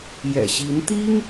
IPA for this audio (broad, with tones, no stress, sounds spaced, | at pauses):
j ɛ̰˨˩ ɕ i˧˥ n t̪ i˥ ŋ